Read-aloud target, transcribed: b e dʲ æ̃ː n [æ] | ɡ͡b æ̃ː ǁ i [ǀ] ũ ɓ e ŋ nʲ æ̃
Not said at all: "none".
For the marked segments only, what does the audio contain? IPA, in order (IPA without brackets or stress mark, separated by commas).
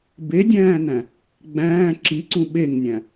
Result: æ̃, ǀ